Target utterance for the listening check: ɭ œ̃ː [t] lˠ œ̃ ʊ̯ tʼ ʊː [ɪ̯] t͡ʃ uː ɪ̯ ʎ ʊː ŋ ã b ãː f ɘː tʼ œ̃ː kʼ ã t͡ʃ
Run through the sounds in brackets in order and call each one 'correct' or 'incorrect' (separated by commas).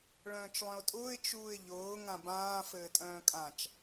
incorrect, correct